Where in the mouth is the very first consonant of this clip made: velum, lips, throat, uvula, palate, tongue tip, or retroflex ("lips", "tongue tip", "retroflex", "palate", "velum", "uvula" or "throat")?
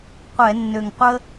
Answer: uvula